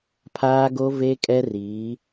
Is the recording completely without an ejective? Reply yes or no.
no